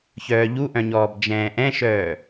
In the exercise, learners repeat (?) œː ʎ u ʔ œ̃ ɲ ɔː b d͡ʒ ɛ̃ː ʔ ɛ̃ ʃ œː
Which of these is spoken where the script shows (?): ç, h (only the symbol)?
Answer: ç